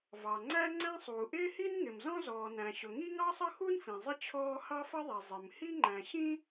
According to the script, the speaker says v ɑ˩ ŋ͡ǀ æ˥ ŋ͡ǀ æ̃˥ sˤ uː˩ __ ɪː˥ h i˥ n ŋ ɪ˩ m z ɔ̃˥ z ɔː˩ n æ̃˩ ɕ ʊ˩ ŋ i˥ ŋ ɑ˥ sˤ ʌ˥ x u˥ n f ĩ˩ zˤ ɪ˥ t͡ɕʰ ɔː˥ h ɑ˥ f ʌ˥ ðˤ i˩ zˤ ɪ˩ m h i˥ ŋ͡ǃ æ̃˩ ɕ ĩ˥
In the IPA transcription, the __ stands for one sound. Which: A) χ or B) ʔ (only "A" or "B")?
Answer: B